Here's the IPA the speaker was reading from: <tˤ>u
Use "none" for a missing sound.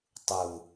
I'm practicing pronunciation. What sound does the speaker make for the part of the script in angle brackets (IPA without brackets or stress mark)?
tˤ